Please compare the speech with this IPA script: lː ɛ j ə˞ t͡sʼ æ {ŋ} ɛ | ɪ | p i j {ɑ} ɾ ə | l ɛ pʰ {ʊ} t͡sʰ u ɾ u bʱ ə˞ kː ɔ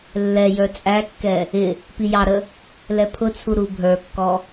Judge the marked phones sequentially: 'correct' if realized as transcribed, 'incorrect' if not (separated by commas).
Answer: incorrect, correct, correct